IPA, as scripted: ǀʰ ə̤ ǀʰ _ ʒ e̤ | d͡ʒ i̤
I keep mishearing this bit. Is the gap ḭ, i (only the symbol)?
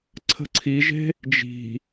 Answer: i